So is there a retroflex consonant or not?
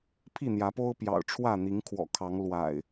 yes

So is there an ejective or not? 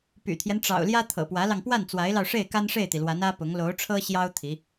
no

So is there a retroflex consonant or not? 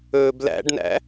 yes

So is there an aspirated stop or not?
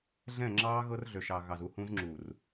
no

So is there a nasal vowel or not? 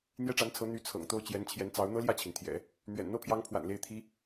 no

